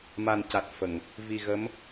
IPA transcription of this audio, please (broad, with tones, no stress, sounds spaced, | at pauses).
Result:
m a˨˩ n c a˨˩ t̚ f ə˨˩˨ ŋ | v i˨˩ ɣ ə˧˥ m